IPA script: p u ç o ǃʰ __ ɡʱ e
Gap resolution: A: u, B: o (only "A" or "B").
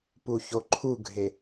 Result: A